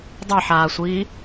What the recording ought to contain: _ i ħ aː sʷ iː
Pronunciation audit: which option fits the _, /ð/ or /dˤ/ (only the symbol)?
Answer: dˤ